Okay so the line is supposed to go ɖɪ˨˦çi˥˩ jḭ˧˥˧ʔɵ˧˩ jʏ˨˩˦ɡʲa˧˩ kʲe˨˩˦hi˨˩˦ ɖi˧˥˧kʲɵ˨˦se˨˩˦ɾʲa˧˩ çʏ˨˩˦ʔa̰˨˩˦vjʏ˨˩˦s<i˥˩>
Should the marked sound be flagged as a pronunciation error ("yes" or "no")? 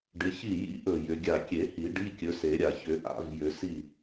no